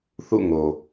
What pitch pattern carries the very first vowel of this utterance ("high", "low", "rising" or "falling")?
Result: falling